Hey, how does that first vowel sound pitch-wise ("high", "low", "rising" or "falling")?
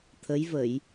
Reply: rising